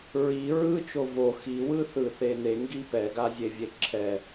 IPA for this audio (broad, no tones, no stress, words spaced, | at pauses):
ɹi ɹɯ t͡ʃovo xiwɯ θɯθen̪eŋɡi pɛɡazʲevʲe ǁʰɛ